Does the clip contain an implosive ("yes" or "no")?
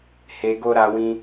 no